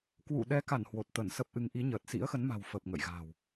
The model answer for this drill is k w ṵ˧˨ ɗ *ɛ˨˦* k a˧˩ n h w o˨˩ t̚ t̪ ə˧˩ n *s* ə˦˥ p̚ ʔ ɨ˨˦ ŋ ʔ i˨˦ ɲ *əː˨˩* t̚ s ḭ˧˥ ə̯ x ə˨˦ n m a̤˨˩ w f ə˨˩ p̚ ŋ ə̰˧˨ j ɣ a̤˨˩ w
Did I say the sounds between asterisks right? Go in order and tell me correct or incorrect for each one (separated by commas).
correct, correct, correct